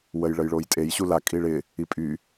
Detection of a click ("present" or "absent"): absent